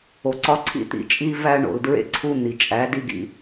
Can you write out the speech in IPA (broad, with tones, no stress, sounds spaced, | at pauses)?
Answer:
o˨ ǀ ɒ˦ ǀʰ ḭ˦ t̪ ḭ˨ t͡ʃʼ i˦ v æ˦ ɳ o̰˨ l d ɹ ḛ˦ ǀʰ u˦ n̪ i˨ t͡ʃʼ æ˨˦ d i˦ ɡ ḭ˦